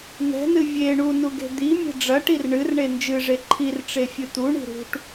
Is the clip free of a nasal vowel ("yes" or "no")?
yes